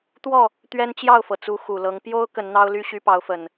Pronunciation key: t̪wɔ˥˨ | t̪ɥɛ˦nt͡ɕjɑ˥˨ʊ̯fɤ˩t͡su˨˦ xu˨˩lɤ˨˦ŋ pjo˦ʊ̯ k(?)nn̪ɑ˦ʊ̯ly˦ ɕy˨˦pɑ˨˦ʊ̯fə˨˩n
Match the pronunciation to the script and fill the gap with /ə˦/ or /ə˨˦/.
ə˨˦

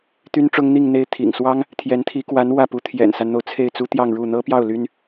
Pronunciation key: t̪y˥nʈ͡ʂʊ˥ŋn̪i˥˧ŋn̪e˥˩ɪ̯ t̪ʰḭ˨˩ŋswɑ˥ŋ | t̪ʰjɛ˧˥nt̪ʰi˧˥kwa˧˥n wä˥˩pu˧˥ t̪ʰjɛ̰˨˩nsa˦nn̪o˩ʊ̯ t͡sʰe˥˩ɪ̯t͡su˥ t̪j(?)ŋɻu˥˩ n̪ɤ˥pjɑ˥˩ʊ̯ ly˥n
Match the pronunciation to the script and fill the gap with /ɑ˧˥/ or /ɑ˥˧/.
ɑ˥˧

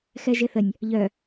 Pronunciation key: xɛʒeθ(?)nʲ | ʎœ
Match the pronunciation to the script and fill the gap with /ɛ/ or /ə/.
ə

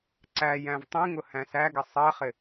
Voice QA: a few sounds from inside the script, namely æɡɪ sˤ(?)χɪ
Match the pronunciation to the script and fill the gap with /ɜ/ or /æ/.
ɜ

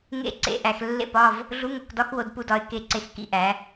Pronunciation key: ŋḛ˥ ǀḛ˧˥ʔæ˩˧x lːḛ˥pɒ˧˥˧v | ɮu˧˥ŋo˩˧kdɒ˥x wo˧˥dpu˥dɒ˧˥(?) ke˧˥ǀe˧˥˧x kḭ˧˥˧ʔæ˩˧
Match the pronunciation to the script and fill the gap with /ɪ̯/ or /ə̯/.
ɪ̯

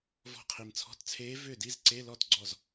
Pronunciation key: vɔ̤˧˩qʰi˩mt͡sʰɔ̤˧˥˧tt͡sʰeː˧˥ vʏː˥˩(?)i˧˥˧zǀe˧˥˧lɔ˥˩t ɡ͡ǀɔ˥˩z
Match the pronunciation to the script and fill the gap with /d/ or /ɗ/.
d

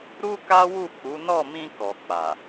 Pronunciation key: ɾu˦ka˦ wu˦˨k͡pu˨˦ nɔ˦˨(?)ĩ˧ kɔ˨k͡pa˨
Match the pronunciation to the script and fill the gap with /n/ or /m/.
m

